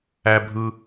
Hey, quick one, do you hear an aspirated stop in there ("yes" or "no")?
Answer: no